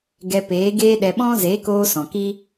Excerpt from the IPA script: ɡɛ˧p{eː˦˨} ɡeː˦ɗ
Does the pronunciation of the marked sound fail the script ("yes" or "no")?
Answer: yes